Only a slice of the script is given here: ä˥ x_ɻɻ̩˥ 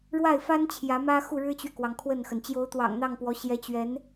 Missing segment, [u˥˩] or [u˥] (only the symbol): u˥˩